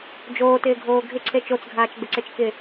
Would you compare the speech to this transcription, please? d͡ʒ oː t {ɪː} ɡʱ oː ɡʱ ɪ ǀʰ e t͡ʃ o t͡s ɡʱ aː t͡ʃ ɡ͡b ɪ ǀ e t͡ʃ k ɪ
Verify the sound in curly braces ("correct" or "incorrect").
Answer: correct